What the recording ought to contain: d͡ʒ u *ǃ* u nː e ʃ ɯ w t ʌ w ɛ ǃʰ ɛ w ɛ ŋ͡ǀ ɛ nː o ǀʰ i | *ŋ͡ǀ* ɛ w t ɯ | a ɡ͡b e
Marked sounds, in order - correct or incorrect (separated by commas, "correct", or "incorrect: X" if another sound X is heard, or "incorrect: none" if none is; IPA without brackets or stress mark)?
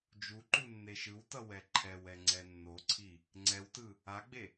correct, correct